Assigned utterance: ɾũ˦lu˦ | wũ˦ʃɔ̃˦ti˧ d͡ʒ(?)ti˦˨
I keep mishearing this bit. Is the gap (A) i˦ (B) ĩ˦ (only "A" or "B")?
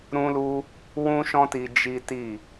A